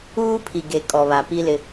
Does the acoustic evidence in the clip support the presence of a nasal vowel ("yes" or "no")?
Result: no